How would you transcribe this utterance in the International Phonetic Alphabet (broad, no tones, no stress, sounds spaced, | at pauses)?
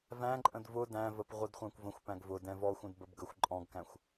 v æ̃ ǃʼ ə̃ d v ʊ d æ̃ v ə p ʁʷ ə d χʷ æ̃ kʷ v ə̃ xʷ p æ̃ ɡ v ʊ d ɛ̃ v ɔ xʷ ə̃ d b ə b ɡ ə xʷ ǃʼ ɔ̃ ɡ k æ̃ xʷ